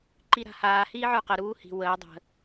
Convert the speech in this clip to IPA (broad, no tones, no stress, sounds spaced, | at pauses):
ǃ i ɾ a̤ h aː h iː ʕ ə˞ q ə ɾ uː h i̤ w əː dˤ ə̤